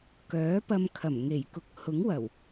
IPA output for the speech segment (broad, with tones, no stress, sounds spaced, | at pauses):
k œː˨˥ p ɐ˧ m kʰ ɐ˨˩ m ŋ e˨˩ j k ʊ˨˥ k̚ h ʊ˨˥ ŋ w ɐ˨˩ w